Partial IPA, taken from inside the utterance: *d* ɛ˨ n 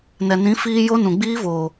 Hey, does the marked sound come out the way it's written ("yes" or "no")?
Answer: no